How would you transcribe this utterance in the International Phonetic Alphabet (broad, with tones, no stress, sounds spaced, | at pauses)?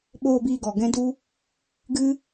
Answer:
ɓ oː˧ b iː˧ ɡ ɔ˨ ɡ ɛ̃˦ d u˦ | ɡ ɨ˦